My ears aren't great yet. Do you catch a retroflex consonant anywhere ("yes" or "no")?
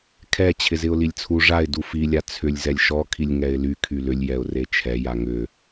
yes